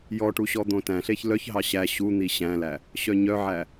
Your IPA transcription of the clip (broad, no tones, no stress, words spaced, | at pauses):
jɔʈu ɕɔd̪õtæ̃ɬeç lœçɦɑ ɕæ ɕun̪i ɕæ̃læ | ɕœɲœʕæ